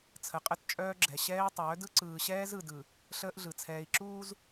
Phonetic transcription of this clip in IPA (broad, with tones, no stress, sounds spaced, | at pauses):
t͡sʰ ə˨ qʼ ə˦˨ t t͡ʃʼ œː˦ ɡ͡ǁ ɛ˨ ɕ ɛː˦ i̯ tˤ œː˨˦ d ɯ˦ ǀ ɯː˨ ɕ ɛː˦ z ɯ˨ d ɯ˨ | ɬ əː˦ ʔ ɮ ɯ˨ t͡sʰ ɛː˨ i̯ ǁ uː˦ z